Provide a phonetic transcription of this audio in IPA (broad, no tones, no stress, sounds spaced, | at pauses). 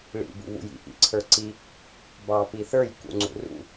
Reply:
ɭ ḭ b ṵ β ṵ j ḭ ʔ ḭ ǀʰ ə˞ ǀ i | b ɑ p i θ ə˞ j k ṵ ŋ͡ǀ ṵ r ṵ